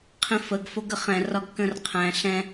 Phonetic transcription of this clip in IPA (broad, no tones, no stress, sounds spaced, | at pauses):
qʰ ĩ f ə ɡ f o ɡ ə χ ɛ̃ r ɒ ɡ k ə̃ r qʰ æ̃ ɬ ɛ̃